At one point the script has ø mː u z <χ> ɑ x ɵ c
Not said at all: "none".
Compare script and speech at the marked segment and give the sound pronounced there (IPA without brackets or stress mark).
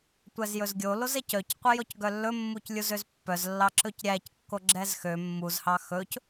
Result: h